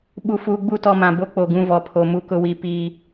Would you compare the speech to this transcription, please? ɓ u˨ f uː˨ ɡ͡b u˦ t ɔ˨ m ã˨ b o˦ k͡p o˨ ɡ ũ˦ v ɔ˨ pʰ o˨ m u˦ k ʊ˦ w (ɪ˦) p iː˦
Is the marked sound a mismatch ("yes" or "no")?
yes